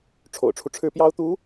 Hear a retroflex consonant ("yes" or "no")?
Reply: yes